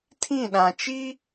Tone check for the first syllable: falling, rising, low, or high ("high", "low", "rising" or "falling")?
falling